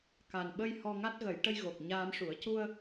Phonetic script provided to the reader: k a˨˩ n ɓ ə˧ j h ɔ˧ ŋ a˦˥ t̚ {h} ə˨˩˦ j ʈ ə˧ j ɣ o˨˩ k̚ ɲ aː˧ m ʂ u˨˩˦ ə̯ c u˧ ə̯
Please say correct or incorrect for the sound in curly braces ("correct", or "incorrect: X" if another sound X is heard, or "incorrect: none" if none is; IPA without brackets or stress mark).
incorrect: ɣ